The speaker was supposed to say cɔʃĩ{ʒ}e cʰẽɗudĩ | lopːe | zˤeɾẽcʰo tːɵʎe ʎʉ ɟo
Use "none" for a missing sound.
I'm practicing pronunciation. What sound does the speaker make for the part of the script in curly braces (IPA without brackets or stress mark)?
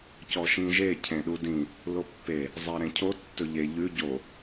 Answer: ʒ